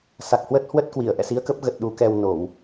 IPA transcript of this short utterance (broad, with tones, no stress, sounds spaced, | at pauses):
s a˨˩ k̚ h w ə˦˥ t̚ h w ə˦˥ t̚ k w i˧˩ ə̯ ʔ ɛ̰˧˨ s i˨˦ ə̯ k ə˦˥ p̚ ɣ ə˨˩ t̚ ɗ u˨˦ k ɛ˧ w n o˧˩˨ w